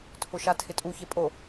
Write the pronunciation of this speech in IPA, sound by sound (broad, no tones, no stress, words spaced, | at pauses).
tʰʊʃatʰɪtʼu çepʼo